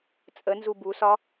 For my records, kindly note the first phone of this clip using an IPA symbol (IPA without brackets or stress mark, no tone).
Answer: t͡sʼ